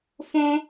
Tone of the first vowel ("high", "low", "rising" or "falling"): high